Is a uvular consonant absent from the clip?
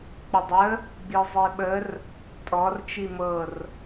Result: yes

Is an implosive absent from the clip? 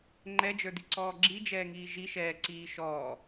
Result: yes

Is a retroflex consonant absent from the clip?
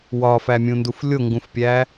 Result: yes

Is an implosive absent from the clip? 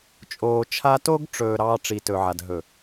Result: yes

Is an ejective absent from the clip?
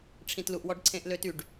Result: yes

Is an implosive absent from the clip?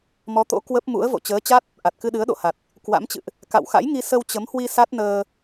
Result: no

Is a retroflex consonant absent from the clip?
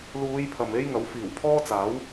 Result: yes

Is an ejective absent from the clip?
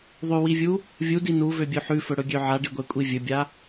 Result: no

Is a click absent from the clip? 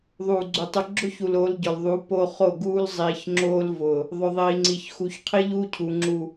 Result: no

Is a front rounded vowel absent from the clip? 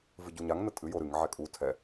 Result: yes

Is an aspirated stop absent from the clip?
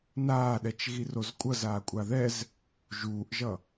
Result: yes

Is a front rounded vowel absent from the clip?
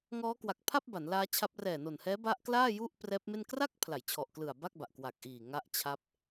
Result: yes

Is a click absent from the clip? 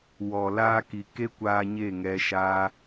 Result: yes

